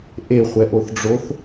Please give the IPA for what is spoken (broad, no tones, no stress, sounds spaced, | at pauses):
ʔ e χʷ ɛ ʔ o θ ɖ͡ʐ o θ